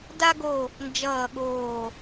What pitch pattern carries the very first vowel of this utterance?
high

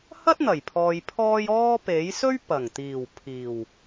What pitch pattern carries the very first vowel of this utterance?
high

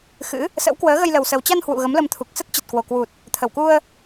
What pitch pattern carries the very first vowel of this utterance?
rising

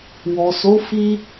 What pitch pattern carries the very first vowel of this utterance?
low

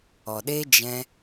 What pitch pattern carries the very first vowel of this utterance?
low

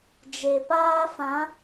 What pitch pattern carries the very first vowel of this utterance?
low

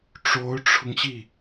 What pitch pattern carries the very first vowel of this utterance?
rising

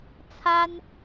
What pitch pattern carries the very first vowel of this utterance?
high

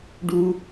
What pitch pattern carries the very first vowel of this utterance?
high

